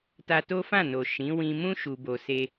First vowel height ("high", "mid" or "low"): low